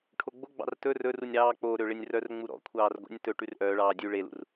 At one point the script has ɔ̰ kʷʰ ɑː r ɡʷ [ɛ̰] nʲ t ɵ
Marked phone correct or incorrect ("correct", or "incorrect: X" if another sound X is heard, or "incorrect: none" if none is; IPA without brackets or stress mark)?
correct